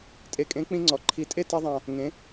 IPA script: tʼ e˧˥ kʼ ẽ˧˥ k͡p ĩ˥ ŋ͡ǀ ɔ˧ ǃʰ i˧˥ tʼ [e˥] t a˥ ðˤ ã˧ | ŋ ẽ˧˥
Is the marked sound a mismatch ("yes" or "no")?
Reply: no